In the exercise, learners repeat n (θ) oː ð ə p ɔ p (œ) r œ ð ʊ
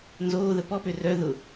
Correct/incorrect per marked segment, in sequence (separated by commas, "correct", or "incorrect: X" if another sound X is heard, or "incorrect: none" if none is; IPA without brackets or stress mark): incorrect: z, incorrect: ø